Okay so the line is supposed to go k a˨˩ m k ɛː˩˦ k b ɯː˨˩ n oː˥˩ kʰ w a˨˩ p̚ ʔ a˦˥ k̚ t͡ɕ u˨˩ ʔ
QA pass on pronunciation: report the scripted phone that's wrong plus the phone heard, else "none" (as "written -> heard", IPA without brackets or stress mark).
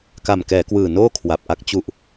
b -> w